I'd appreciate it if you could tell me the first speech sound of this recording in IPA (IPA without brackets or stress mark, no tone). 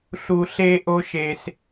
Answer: ɬ